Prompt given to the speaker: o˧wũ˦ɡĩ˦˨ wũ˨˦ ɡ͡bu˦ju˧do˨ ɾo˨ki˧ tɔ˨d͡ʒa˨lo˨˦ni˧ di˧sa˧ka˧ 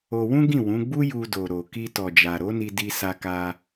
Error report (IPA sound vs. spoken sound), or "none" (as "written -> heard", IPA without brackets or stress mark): l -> ɾ